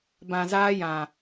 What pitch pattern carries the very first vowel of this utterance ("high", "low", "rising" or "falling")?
low